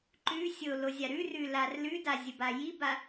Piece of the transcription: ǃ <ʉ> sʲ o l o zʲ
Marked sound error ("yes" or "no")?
no